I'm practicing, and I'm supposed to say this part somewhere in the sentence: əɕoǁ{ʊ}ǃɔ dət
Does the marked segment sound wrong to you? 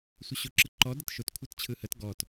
yes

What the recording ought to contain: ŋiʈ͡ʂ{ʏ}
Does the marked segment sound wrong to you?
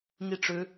no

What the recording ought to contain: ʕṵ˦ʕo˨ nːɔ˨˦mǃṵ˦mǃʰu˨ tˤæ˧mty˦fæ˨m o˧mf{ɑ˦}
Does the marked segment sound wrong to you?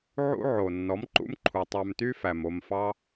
no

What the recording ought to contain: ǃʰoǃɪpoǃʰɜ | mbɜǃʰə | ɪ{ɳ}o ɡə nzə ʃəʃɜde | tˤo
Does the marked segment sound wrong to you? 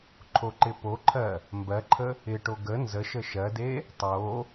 yes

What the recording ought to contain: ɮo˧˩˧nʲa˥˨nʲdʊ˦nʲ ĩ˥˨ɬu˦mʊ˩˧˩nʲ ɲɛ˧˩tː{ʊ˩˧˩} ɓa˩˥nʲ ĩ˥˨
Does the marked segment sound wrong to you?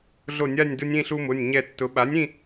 yes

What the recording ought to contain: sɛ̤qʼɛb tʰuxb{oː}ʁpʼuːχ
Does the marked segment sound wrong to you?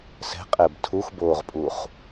no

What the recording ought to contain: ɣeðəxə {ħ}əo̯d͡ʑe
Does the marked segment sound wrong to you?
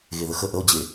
yes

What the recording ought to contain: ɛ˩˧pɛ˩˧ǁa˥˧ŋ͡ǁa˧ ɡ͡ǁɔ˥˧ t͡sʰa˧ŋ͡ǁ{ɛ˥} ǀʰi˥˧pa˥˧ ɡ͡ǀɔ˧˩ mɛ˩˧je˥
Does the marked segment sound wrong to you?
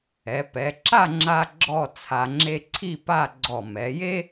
yes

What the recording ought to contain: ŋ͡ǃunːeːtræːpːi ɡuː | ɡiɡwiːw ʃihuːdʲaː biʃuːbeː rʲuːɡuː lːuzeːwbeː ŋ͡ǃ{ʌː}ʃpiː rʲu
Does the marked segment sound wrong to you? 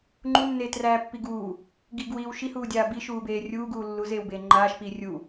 yes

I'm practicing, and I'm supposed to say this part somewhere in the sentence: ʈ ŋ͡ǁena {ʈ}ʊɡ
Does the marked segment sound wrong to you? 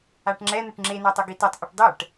yes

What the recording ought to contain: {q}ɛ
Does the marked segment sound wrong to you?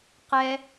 no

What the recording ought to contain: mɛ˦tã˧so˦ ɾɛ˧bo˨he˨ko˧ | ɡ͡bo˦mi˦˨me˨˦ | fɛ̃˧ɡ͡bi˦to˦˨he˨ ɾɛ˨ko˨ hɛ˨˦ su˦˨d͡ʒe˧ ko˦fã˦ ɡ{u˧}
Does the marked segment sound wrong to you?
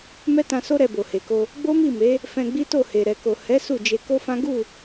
yes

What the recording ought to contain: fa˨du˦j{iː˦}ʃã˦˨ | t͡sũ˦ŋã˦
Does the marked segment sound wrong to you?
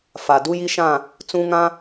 yes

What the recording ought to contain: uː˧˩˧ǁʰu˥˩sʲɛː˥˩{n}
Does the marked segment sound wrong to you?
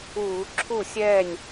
yes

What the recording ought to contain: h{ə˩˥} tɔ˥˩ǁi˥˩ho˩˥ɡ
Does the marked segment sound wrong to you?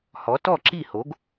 yes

